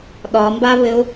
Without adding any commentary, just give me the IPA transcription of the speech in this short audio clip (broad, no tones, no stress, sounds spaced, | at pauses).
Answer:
ɗ ɒ m b a β ɘ ʊ̯